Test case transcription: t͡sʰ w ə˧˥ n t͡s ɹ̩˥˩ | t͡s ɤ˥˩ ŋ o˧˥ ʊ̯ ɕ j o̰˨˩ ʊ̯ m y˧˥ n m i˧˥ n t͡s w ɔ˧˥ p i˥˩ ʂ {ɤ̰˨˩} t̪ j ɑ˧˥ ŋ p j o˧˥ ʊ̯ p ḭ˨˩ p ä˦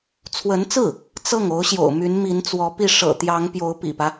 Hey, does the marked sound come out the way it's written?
yes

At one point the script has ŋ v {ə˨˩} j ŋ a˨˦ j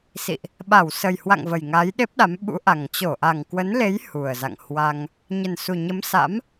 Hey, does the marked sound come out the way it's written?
yes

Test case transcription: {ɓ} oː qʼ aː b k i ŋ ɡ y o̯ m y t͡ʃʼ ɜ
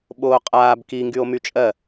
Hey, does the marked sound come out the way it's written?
yes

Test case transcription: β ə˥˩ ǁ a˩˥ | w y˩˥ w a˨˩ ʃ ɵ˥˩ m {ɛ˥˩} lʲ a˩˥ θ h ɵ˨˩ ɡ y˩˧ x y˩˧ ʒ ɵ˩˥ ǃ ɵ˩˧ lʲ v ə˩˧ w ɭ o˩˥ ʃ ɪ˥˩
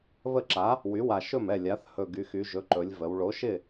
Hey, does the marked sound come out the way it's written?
yes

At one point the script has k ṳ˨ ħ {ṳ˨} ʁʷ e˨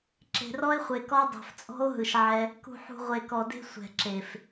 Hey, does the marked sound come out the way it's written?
yes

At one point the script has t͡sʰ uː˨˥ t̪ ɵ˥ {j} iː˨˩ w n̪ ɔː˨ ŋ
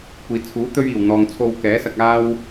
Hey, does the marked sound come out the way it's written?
no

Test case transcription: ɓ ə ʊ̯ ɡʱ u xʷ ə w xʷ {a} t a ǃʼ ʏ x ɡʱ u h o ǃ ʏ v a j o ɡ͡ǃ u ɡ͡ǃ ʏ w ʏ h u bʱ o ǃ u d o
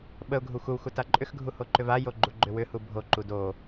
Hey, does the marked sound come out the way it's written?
yes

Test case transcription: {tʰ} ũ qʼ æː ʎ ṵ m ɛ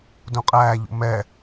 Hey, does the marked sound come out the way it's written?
no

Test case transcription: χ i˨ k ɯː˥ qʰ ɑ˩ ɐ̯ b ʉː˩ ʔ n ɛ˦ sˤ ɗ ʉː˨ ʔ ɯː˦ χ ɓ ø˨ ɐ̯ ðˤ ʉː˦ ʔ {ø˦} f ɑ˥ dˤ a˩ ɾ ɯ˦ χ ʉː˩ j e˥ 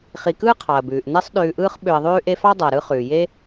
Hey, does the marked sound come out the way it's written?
no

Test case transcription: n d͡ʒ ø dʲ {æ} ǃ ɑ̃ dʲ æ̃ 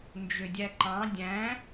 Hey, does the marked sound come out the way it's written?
yes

